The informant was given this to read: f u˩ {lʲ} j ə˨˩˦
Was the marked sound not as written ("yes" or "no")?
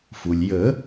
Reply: no